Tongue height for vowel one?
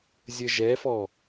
mid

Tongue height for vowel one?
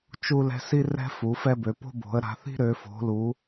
high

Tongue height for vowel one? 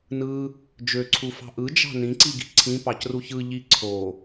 high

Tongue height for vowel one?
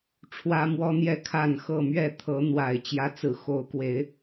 low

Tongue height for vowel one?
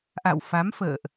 low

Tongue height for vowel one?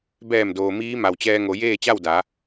mid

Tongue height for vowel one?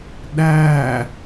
low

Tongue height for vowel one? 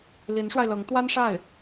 high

